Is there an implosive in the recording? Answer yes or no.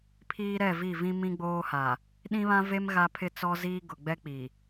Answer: yes